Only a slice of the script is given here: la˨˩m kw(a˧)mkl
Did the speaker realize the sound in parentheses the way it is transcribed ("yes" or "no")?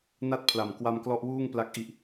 yes